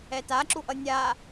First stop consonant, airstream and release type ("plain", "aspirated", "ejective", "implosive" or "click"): plain